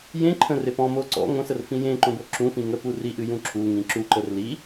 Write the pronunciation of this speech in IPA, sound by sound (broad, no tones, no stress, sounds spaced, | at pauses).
j ẽ ǃʰ ə̃ r e p ɔ̃ m o ǀ ɔ̰ ŋ õ s ə r f ĩ j ẽ ǃ õ b o ǁ ũ f ĩ ŋ ə p u r i ʔ ɨ j ũ ǁ u ŋ ĩ ǁ u ǃ ə r l i